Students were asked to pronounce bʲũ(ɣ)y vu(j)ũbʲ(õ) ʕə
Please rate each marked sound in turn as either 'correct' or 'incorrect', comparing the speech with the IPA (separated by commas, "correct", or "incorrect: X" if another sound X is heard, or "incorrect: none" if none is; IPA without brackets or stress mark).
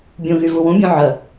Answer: correct, incorrect: w, correct